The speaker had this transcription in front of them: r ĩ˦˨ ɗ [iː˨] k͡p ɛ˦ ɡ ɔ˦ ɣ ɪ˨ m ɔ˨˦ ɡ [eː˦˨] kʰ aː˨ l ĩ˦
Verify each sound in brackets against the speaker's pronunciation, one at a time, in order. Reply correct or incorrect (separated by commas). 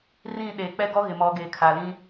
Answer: incorrect, incorrect